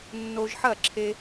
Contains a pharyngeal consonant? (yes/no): yes